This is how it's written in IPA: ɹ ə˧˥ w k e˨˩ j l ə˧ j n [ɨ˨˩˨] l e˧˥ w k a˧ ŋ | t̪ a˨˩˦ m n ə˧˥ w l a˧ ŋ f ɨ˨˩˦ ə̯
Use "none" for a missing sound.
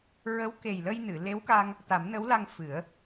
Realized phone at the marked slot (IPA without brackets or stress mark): ɨ˨˩˨